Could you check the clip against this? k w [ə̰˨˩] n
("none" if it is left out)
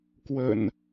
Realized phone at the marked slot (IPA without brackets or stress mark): ə̰˨˩